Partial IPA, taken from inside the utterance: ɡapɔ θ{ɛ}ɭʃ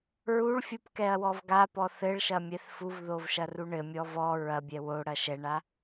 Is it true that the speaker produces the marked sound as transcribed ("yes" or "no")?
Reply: no